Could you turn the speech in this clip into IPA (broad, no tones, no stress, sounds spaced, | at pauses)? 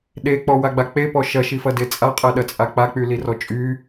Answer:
ɗ e k͡p ɔ w a ɡ͡b a k͡p e p ɔ ʃ ɐ ʃ i f ɐ d e t͡sʼ a qʼ ɛ ɗ ɐ t͡sʼ a k͡p a k͡p y l i r ɔ t͡ʃʼ y